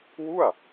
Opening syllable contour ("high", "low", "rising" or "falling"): falling